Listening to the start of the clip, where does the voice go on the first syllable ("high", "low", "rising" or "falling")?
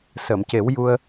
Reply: low